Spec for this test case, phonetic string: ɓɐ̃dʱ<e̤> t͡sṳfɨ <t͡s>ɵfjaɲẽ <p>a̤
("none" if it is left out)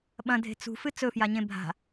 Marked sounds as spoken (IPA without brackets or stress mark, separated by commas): e̤, t͡s, bʱ